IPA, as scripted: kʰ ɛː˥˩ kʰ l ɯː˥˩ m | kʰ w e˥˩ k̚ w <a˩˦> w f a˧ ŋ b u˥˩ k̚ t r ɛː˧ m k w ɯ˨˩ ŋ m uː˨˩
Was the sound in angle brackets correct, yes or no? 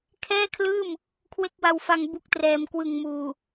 no